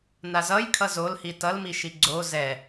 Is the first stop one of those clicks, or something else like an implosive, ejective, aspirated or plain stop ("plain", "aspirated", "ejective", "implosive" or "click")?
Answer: aspirated